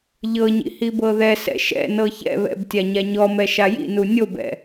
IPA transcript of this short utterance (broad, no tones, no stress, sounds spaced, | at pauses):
ʎ ɤ ɲ ḭ h i b ɤ ð ɛ s ɛ̰ ʃ ɛ̰ n ɤ ç ɛ̰ β ɛ̰ b tʲ a ɲ a ɲ ɔ m ɛ ʃ a j ḭ n u nʲ o b ɛ̰